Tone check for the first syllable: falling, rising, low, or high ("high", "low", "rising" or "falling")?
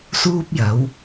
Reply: high